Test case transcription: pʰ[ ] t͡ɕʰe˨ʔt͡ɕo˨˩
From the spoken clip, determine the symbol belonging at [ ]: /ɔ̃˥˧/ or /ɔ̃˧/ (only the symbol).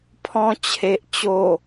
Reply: ɔ̃˧